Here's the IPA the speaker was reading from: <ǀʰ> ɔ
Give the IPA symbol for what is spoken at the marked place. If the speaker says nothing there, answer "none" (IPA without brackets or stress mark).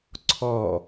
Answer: ǀʰ